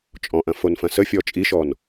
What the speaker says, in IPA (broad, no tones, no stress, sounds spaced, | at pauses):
t͡ʃʼ ɔ̃ ʔ ɐ̃ f o n f ɐ̃ s ə fʲ ɔ t͡ʃʼ i ʃ ɔ n